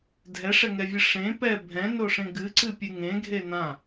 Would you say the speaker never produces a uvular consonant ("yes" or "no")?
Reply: yes